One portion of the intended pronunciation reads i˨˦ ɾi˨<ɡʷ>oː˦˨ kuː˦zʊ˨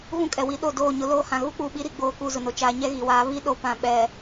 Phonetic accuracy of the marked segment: incorrect: ɡ͡b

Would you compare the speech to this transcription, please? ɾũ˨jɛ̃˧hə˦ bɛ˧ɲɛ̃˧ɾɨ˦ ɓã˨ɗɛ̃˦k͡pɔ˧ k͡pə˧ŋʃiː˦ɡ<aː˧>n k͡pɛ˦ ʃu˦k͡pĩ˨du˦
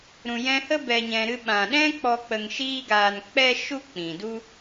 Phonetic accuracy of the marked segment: correct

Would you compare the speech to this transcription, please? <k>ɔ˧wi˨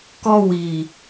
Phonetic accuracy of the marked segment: correct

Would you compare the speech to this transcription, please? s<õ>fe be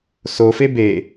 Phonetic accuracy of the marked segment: incorrect: o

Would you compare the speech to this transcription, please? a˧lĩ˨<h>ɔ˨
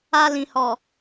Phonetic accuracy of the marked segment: correct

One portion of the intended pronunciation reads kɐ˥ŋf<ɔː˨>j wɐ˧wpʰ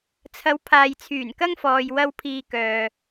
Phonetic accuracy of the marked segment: correct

